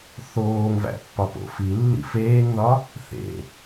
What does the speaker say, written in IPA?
θ oː ŋ v æ̰ pː ɒ p o̰ f i lː ḭ f eː ŋ ð ɒ | θ ḛ

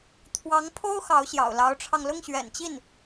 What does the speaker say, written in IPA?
t̪ʰ w ɑ˧˥ ŋ pʰ o˥ ʊ̯ x ɑ˧˥ ʊ̯ ɕ j ɑ̰˨˩ ʊ̯ l ɑ˧˥ ʊ̯ ʈ͡ʂʰ ɑ˧ ŋ l ʊ˥˩ ŋ ɕ ɥ ɛ̰˨˩ n t͡ɕ i˥˩ n

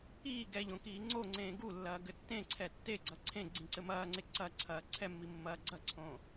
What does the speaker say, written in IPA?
iː ɡ ɛ ʎ õ k iː ŋ͡ǀ o ŋ͡ǀ ẽː ɡ u lː ɐː ɡ ɘ tː ẽ ǀʰ ɛ tː e ɡ͡ǀ ɐ ǀʰ ẽ ɡ͡ǀ ĩ ǀ ɘ m ɐː ŋ͡ǀ e ǀ ɐ ǀʰ ɐː ǀʰ ɛ mː i mː ɐː ɡ͡ǀ ɐ ǀʰ õ

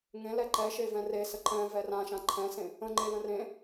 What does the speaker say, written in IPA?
ŋ ẽ l ɛ ǃ ɛ ʃ e v ɛ̃ r e s ə ǃ ɛ̃ v ɛ r ã ʃ ã ǃʰ ɛ̃ s ẽ | ə̃ ŋ͡ǃ e l ə̃ r ẽ

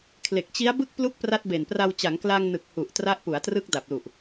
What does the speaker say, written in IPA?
kʰ l e˨˩ k̚ t͡ɕ i˦˥ a̯ b ɯ˥˩ k̚ p l u˦˥ k̚ p r a˦˥ t̚ b e˨˩ n p r a˧ w t͡ɕ a˩˦ ŋ k l aː˧ ŋ n ɯ˨˩ k̚ h u˨˩ ʔ t r a˦˥ ʔ p u˩˦ a̯ t r ɯ˦˥ k̚ d a˨˩ p̚ l u˨˩ ʔ

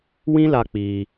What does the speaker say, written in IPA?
w ĩ˦ l a˧ k͡p i˧

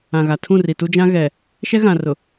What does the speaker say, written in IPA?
ã˨ ɣ a˨ tʰ ũ˦˨ r i˨ t u˦ d͡ʒ ã˦ ɣ ɛ˨ | ʃ ɛ˦ ɣ ã˨ r ʊ˨

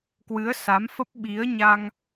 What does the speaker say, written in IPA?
k w ɨ˨˦ ə̯ s a˨˦ m f ə˦˥ p̚ ɓ i˨˦ ə̯ ɲ a˧ ŋ

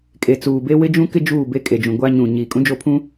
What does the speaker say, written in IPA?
kʼ e˨ t͡s uː˨ b e˦ w ɪ˦ d͡ʒ ũ˦ k ɪ˦ d͡ʒ uː˦˨ b e˦ kʼ e˨ d͡ʒ ũ˨ ɡʷ a˦ ɲ ũ˨ ɲ iː˨ kʼ ũ˦ d͡ʒ o˦˨ pʰ ũ˦

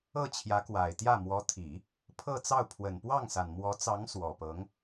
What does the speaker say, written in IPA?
ɤ˥˩ t͡ɕʰ j ä˧˥ k w a˨˩ ɪ̯ t̪ j ä˥˩ m w ɔ˧˥ t̪ʰ i˨˩˦ | pʰ ɤ˥˧ t͡s ɑ˥˩ ʊ̯ pʰ w ə˨˩ n p w ɑ˥˩ ŋ s a˨˩ n m w ɔ˧˥ t͡s ɑ˧˥ ŋ s w ɔ˨˩ p ɤ˧˥ ŋ

